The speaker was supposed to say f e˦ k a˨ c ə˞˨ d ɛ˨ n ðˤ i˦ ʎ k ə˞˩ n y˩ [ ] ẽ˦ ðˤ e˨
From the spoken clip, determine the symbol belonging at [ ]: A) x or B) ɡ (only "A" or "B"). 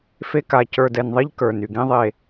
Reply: B